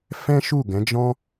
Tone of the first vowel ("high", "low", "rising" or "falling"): high